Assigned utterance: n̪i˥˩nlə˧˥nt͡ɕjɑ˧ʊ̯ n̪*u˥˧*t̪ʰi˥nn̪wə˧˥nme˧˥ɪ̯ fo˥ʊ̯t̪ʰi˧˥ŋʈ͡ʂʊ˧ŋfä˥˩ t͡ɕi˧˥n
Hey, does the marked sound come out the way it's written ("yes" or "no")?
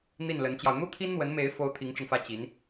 no